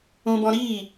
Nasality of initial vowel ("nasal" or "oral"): nasal